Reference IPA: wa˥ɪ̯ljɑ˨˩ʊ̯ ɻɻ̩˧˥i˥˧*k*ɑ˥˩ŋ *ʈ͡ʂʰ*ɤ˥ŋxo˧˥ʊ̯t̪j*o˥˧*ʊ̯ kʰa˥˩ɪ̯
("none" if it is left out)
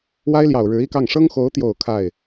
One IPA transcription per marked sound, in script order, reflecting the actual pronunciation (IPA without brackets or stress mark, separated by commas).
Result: k, ʂ, o˨˩